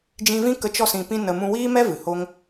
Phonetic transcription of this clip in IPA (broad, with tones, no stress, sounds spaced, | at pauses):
d͡ʒ ĩ˧ v ĩ˦ k ə˧ t͡ʃ ɔ˦ s ĩ˧ p ĩ˦ n ə˧ m ũ˧ w iː˦ m ɛ˦ v ɨ˨ h o˦ ŋ